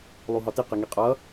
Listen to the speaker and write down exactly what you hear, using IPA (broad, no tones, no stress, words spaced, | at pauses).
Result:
lˠuɦɒti qiŋiqʼʌ